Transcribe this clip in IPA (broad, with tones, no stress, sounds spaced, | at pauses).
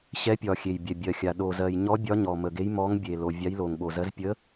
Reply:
ɕ ɛ˨˥ pʲ ɒ˨˩ xʲ e˨˩ j bʲ ɛ˨˩ bʲ ɜ˨˩ xʲ a˨˩ ɗ o˨˩ z ɜ˨˩ j ɲ ɔ˨˥ bʲ ɒ˨˥ ɲ ɔ˨˩ m ə˨˩ ɡ e˨˥ j m ɔ˨˥ ŋ bʲ e˨˩ l o˨˩ vʲ a˨˥ j l o˨˩ ŋ ɓ o˨˩ z ɜ˨˥ z pʲ ə˨˥